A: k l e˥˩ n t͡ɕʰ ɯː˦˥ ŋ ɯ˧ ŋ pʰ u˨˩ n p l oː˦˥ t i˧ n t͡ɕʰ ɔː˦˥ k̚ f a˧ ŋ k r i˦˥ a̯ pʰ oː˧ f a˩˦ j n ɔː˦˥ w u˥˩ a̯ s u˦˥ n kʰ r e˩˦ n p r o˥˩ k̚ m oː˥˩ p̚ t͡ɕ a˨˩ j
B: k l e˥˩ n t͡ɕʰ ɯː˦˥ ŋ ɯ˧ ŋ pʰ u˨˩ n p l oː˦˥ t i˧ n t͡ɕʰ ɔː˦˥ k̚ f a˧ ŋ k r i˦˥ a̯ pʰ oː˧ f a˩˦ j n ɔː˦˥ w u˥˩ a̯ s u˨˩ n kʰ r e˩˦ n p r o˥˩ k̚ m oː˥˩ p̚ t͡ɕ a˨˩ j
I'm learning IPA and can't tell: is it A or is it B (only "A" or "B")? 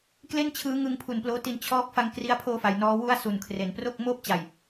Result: B